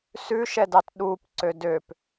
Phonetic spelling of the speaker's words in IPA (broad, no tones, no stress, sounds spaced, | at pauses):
s ʉ ʃ ɛ d ɑ t ɗ u p ǀ ø d ø p